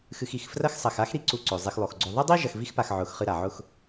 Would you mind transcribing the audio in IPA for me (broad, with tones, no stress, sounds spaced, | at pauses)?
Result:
x ɨ˨ x i˩ x f r ɐ˦ x sˤ ɐ˨ x a˥ x ɾ i˦ ǀ u˨ ǀ o˩ zˤ e˨ x lˠ o˩ x ɡ͡ǀ o˨ ðˤ ɨ˥ dˤ i˥ ʒ ɐ˨ x v i˦ x p a˨ x ʕ ʊ˨ x χ ɨ˦ ɾ a˩ ʕ ʊ˥ x